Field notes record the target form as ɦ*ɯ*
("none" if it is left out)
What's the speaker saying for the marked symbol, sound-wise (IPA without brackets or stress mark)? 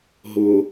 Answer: ʊ